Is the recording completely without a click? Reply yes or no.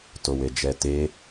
yes